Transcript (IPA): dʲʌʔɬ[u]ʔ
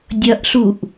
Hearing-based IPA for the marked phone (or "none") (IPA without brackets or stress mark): u